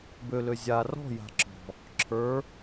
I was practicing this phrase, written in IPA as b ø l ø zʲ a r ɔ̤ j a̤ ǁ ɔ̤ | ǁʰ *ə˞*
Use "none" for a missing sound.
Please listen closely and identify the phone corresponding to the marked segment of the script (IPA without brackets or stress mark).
ə˞